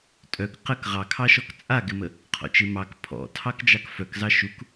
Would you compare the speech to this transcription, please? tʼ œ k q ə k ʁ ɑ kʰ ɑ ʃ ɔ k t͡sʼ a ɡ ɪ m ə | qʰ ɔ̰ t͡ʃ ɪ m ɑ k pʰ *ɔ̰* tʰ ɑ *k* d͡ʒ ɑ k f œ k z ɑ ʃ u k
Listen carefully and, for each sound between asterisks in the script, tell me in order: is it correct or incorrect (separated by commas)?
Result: correct, correct